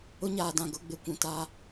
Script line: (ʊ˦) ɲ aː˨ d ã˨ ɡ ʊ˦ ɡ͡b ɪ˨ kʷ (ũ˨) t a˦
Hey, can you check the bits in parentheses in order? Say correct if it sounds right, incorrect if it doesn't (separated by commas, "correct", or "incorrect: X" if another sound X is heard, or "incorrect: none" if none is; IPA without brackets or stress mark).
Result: correct, correct